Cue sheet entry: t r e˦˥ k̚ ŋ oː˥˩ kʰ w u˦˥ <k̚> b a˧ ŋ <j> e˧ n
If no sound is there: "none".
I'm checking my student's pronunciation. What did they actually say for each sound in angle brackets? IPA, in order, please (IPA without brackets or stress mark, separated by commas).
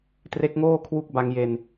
k̚, j